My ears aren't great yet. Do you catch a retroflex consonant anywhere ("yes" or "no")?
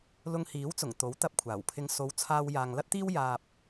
no